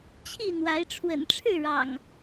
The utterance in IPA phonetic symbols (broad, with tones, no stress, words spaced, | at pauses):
t͡ɕʰi˥˨n̪wa˨˦ɪ̯ ʈ͡ʂʰwə̰˨˩nʈ͡ʂʰɻ̩˥˨ɻɑ̰˨˩ŋ